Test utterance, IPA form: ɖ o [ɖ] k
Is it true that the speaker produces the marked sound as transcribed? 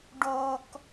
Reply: no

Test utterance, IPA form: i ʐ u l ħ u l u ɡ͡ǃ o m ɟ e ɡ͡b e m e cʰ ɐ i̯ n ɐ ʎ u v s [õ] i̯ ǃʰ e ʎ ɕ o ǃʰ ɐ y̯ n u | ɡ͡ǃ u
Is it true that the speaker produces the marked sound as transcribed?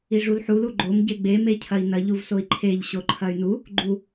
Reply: no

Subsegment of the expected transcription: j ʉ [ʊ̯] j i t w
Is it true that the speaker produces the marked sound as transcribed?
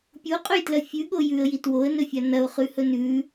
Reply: no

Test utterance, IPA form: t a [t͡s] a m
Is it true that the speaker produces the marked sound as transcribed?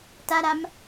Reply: no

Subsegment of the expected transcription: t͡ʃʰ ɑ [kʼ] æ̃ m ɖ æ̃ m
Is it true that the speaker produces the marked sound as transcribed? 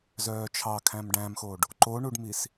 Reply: no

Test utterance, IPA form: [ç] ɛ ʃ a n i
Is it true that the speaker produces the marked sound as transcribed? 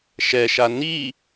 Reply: no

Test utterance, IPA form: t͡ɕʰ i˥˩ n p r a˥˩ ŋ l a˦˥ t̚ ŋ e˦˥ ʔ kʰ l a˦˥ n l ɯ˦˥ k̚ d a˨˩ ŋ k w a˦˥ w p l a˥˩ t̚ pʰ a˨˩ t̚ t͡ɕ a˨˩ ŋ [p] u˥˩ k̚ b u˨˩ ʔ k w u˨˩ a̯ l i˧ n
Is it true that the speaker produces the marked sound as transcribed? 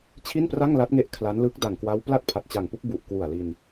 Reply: yes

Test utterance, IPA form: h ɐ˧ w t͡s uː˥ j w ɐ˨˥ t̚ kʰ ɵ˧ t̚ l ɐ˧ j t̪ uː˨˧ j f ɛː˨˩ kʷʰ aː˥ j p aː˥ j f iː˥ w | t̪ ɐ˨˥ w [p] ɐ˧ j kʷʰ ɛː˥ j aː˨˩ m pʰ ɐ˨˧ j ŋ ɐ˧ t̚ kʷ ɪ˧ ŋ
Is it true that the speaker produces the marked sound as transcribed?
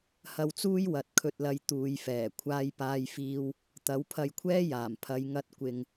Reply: no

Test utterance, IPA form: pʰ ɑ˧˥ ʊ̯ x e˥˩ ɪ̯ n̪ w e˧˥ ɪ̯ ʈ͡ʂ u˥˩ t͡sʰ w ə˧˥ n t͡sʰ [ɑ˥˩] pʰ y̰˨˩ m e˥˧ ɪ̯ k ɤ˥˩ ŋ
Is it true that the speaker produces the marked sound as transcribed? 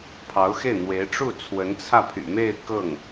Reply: no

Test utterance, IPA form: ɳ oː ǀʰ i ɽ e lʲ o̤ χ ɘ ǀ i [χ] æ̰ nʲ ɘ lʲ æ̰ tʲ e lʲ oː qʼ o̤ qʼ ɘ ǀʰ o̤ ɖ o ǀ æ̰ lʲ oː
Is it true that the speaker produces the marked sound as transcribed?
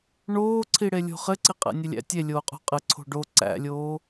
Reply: no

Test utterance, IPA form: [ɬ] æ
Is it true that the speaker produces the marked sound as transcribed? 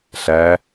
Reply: yes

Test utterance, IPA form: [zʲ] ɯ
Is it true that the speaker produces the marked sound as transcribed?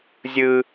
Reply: yes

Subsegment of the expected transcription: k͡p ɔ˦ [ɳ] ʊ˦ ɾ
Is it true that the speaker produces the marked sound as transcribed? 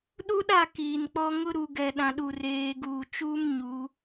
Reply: no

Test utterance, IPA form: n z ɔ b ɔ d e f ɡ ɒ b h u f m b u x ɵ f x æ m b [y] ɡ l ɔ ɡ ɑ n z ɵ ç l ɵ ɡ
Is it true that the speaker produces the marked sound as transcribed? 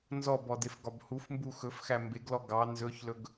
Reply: no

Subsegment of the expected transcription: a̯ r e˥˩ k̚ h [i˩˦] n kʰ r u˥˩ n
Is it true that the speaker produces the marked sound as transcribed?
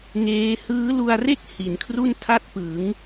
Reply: yes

